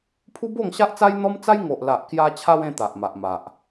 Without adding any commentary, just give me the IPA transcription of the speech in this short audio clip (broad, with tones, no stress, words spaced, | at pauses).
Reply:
pʰu˦bo˥˧ŋɕa˦ʔt͡sa˦j n̪ɔ˦mt͡sa˦j ŋo˨ʔla˨ʔkja˧t͡ɕʰa˧w ẽ˥˧ t̪a˨ʔ ma˨ʔma˨ʔ